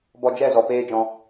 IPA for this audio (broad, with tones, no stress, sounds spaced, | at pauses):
b ɔ˧ d͡ʒ ɛ˦˨ z ɔ˨ p eː˦ d͡ʒ ɔ̃˧